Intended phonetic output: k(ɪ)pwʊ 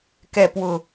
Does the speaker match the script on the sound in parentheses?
no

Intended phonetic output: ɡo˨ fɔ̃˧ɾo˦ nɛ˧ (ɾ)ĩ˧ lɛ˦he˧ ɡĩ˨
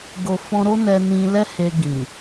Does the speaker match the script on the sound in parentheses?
no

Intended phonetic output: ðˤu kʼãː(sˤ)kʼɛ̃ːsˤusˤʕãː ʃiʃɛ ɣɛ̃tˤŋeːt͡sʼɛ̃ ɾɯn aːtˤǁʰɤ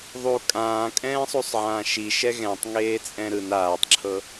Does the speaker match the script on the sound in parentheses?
no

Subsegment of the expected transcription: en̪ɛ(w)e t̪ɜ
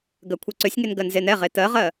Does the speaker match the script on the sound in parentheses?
no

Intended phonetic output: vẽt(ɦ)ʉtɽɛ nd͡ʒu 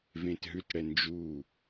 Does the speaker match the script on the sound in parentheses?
yes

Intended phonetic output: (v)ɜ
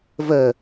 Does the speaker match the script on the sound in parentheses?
yes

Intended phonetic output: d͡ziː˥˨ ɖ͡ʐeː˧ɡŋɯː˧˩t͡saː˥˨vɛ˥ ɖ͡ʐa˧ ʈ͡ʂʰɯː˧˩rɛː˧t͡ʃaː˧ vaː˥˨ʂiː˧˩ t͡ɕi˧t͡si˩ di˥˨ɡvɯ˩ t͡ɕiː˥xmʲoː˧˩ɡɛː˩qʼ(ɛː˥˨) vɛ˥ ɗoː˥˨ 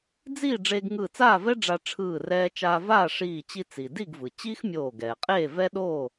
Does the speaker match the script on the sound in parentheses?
no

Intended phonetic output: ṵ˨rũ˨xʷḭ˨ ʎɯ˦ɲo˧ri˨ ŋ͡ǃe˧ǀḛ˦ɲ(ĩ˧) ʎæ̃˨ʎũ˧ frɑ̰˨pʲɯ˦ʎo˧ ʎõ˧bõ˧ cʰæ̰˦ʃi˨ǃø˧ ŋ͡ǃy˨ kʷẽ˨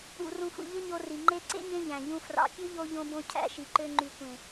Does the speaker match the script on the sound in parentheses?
no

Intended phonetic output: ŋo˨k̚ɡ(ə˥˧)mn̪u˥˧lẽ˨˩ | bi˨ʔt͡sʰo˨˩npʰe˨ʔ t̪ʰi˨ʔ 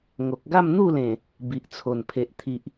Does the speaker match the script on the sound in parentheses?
no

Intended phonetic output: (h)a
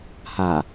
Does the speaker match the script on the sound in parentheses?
yes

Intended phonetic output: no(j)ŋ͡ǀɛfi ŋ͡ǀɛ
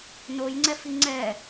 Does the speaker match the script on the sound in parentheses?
yes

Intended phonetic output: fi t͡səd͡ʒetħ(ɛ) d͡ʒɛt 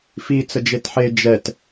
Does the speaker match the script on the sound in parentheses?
no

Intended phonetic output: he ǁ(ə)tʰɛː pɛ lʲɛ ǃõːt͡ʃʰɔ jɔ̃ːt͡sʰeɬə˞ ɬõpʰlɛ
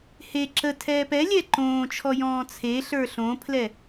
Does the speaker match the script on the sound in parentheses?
yes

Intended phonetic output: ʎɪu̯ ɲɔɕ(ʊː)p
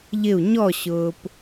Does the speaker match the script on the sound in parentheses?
yes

